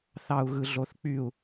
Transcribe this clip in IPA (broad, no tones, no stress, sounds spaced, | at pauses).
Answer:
θ ɑ u̯ ɣ ɯ ɮ o θ k͡p y u̯